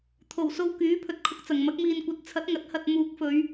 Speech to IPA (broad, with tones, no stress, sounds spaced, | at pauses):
t̪ʰ o˨˩ w s o˧ w k yː˨˥ pʰ ɵ˨ t̚ kʰ ʊ˧ k̚ t͡s ɐ˨˩ ŋ m ɐ˨˥ k̚ m iː˨ n kʷ ɐ˨˥ t̚ t͡sʰ ɐ˨˥ t̚ ŋ ɐ˨˥ t̚ h ɐ˨ t̚ m uː˨˥ k̚ f ɵ˨˧ ɥ